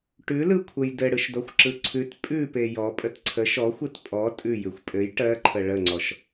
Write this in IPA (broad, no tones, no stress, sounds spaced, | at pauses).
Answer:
ʈ ʉ l ɯ kʷʰ ə j d ɘ ɽ ɯ ʃ d ɔ xʷ ǁ ɯ ǀʰ ʉ t pʼ ʉ p e j ɔ pʼ ə t ǀʰ ə ʃ ɔ xʷ ɯ t pʼ ɔ tʼ ʉ j ʉ xʷ pʼ ɘ j ʈ ɜ ǃʰ ə ɭ ə ŋ͡ǀ ɔ ʃ